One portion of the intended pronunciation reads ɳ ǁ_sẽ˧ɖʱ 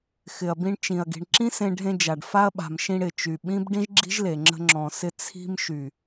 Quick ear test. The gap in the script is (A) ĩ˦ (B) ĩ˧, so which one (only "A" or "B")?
A